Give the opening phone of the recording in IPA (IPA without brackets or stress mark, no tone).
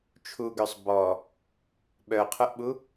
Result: t͡ʃʰ